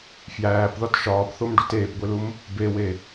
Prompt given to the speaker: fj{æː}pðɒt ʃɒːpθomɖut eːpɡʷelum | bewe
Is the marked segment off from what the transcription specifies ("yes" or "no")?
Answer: no